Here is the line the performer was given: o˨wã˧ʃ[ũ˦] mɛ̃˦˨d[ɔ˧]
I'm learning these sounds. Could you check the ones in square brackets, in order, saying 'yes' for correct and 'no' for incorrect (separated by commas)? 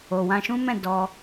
yes, yes